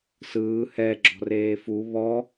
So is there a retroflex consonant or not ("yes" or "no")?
no